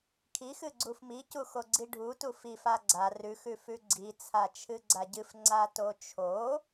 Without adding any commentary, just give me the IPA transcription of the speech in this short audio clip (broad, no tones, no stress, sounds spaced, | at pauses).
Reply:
kʰ i x ɨ ɡ͡ǀ u f m i c u x o ɡ͡ǀ i ɖʱ u t u f i f a ɡ͡ǀ a r ʉ x ʉ f ʉ ɡ͡ǀ i t͡sʰ a t͡ʃʰ ɨ ɡ͡ǀ a ɟ ɨ f ŋ͡ǀ a t o t͡ʃʰ o